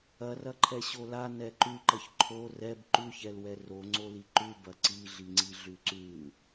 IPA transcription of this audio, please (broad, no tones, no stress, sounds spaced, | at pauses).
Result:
ɐ r ɐ ǃʰ ɛ ɕ o l a n ɛ ǃ ʉ ǃ ɐ ç ǃʰ o r ɛ b ǃ ʉ ç ɛ l w ɛ r o ŋ͡ǀ o l i ǃ ʉ b ɐ ǀ i ɮ i ŋ͡ǀ i ɮ ʉ ǀ ʉ